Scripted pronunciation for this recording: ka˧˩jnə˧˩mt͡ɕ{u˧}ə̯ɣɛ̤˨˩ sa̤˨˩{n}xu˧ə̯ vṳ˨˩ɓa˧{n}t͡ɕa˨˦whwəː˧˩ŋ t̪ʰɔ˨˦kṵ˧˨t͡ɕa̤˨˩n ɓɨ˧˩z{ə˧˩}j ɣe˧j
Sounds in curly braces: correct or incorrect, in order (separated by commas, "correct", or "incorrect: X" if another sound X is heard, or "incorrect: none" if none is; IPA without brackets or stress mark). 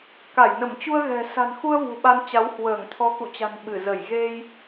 correct, correct, correct, correct